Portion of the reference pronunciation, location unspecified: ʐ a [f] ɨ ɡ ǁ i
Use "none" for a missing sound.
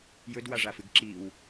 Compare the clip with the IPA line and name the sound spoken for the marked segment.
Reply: f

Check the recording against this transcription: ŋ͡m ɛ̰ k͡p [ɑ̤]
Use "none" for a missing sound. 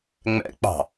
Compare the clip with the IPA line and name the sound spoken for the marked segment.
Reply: ɑ̤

